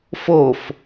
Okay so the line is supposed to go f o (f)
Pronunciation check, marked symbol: correct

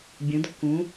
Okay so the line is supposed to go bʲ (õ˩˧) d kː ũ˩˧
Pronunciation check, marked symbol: incorrect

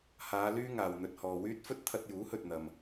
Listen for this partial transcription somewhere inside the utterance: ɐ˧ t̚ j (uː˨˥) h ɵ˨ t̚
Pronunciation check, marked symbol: correct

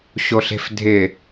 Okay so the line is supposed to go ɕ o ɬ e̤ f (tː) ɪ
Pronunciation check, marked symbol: incorrect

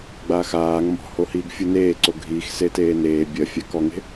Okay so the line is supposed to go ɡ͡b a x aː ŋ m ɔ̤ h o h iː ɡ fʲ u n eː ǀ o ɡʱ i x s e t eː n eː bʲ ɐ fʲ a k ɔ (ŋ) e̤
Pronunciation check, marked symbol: correct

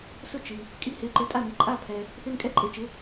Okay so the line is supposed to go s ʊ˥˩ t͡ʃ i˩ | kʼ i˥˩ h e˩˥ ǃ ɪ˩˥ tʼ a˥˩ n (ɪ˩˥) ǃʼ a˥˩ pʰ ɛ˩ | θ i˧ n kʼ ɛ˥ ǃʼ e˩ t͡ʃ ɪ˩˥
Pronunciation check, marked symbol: incorrect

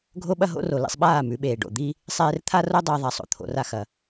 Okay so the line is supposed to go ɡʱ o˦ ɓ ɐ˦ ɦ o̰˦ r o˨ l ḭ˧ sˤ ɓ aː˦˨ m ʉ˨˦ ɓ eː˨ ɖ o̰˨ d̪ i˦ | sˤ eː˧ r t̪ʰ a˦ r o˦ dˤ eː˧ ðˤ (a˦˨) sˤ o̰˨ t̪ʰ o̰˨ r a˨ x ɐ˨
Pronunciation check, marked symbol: incorrect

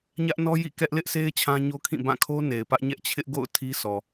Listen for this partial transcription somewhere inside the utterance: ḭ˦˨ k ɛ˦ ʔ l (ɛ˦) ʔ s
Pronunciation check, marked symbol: incorrect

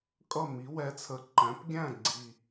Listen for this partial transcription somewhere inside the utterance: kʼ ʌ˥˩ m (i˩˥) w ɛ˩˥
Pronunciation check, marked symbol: correct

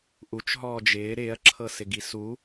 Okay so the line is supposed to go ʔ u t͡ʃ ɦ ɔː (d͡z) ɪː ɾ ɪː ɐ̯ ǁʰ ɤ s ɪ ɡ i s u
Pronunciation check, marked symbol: incorrect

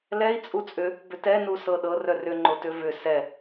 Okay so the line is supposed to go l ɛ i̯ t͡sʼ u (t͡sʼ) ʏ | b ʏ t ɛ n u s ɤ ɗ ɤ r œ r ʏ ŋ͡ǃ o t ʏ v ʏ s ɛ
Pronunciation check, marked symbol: correct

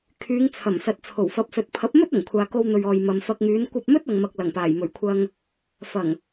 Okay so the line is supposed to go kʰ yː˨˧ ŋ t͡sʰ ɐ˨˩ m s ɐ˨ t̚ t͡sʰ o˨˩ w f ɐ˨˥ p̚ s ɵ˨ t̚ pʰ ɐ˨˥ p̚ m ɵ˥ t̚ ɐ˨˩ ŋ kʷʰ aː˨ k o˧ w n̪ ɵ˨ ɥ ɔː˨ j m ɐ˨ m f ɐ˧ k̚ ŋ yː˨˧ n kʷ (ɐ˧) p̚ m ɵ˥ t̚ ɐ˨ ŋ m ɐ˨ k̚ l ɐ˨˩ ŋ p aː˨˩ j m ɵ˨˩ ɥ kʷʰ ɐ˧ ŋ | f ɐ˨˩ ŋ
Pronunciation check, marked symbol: correct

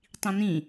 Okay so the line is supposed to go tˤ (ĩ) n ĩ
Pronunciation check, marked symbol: correct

